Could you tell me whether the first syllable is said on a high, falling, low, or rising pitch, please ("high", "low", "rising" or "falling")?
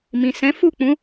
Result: low